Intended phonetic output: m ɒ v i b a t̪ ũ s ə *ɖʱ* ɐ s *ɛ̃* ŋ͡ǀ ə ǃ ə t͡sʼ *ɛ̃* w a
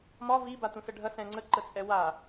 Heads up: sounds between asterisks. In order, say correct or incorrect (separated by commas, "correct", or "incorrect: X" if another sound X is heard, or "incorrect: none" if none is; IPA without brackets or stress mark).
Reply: correct, correct, incorrect: ɛ